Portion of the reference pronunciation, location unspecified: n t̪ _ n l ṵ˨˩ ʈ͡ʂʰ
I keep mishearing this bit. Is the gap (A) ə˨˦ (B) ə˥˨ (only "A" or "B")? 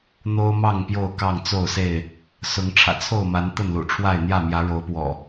B